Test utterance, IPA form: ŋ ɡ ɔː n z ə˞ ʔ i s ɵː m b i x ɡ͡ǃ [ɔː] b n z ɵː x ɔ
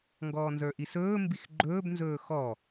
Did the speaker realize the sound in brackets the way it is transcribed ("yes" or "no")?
no